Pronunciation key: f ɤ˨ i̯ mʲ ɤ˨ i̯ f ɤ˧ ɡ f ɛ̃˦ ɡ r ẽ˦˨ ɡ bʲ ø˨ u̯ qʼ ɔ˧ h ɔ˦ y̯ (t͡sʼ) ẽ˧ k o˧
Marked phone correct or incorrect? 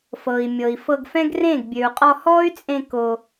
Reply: correct